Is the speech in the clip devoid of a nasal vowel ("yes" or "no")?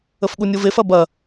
yes